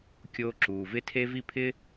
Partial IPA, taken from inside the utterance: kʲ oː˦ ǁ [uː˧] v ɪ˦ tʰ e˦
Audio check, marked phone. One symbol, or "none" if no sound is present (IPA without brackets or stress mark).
uː˧